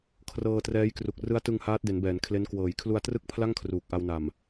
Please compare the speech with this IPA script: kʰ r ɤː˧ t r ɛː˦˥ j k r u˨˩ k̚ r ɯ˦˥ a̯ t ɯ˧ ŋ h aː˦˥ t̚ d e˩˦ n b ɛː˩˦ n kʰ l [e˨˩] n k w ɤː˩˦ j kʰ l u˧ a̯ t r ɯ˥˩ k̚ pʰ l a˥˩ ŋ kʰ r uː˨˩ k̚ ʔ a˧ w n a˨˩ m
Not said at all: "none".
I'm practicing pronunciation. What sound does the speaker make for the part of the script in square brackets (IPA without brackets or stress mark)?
e˦˥